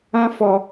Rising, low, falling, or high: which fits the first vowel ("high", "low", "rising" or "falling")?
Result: high